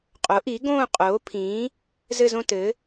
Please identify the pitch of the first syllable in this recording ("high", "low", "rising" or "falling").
rising